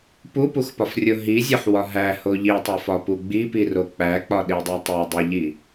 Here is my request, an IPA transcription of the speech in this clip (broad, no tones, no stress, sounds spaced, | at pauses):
p u p u x p ɒ f rʲ o ɦ i zʲ ɒ ħ w ɒ ɦ æ h o ʎ i tˤ o f ɒ p u ɡ͡b i p i r o k͡p æ k͡p ɒ ɗ i dˤ æ tˤ e dˤ e ʎ i